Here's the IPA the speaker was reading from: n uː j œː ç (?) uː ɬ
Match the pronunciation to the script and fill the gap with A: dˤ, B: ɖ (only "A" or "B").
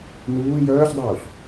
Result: A